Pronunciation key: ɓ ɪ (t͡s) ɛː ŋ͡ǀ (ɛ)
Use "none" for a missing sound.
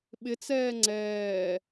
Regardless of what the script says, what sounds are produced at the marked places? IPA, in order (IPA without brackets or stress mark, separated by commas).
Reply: t͡s, ɛː